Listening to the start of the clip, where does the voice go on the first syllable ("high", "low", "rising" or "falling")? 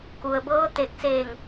low